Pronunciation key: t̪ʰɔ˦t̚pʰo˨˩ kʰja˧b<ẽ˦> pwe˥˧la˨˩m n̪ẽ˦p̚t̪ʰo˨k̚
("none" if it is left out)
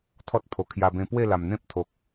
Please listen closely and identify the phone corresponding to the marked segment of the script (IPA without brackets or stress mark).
ẽ˧